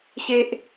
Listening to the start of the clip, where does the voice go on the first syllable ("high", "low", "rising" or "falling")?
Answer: high